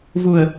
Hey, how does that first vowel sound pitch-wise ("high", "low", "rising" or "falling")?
low